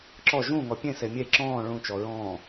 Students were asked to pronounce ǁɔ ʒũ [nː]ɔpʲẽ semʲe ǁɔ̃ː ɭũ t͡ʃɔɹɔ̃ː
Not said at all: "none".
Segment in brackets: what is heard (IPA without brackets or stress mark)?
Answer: ŋ